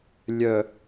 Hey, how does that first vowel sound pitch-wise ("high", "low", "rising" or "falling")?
low